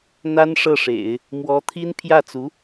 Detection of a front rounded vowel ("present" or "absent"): absent